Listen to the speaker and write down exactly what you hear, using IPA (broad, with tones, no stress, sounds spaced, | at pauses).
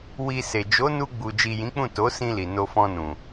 w i˧ s e˨ d͡ʒ o˨˦ n u˧ ɡ͡b u˨ d͡ʒ i˨ j ĩ˨˦ k͡p ũ˦˨ t o˨˦ s ĩ˧ l i˨ n o˧ f ɔ̃˧ n ũ˨